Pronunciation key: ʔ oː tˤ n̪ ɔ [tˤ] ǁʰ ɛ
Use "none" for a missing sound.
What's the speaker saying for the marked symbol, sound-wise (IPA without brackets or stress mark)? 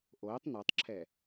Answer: tˤ